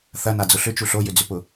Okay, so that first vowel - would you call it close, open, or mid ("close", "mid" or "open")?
open